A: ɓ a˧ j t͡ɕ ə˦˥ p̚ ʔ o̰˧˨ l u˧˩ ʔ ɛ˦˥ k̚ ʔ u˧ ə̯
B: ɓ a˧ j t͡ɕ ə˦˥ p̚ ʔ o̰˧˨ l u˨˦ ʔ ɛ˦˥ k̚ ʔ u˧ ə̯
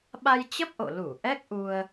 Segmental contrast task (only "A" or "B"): A